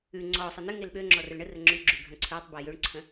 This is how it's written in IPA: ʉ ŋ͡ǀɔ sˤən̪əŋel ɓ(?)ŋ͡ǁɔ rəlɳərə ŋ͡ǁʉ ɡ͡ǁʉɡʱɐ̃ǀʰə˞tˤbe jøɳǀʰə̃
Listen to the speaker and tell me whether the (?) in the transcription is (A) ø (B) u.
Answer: A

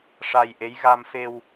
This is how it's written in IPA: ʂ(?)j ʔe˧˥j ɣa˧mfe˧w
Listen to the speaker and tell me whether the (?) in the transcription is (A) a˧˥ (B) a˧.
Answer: B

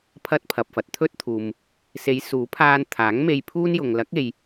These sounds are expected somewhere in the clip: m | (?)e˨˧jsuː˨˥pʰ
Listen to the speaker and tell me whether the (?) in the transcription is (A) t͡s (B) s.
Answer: B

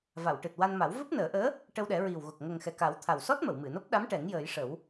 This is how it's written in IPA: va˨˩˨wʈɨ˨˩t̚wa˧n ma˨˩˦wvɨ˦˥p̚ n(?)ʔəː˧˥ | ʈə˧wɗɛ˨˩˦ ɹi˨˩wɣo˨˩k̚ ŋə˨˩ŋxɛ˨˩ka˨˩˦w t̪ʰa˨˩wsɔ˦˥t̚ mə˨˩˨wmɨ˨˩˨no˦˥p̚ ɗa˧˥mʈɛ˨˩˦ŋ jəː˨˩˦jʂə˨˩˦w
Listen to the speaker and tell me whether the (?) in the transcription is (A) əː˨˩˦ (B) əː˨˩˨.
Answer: A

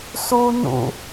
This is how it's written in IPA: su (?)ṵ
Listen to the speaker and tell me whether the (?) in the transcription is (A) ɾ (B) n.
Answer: B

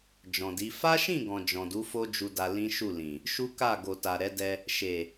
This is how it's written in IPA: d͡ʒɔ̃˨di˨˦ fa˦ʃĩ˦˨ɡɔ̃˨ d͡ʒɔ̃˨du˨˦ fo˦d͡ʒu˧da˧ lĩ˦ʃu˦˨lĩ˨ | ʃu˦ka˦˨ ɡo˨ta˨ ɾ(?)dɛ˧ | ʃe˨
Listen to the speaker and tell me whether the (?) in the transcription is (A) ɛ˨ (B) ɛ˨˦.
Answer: B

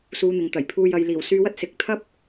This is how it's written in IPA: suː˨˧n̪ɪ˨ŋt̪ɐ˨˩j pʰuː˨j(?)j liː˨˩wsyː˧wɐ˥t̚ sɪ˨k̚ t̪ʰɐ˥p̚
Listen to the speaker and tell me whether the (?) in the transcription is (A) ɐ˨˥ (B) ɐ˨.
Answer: B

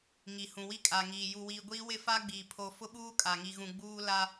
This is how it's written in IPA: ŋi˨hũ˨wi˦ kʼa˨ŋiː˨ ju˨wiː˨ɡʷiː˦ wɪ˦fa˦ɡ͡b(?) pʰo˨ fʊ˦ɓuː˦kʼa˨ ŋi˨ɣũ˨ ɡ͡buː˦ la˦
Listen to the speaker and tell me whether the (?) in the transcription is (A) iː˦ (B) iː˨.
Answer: B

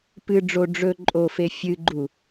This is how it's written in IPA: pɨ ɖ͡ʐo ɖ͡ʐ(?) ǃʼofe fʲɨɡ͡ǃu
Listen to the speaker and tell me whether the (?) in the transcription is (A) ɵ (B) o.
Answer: A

